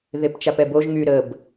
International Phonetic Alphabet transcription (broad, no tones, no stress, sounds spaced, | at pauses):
ð e p t͡ʃ a p ɛ b o ʒ ŋ y ɾ ə b